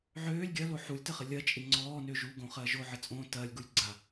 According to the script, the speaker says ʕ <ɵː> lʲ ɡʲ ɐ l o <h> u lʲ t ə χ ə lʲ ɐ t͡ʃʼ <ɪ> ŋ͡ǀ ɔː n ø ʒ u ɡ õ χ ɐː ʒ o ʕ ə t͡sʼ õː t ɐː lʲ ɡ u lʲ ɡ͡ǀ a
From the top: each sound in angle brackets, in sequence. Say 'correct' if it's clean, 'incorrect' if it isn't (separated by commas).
incorrect, incorrect, correct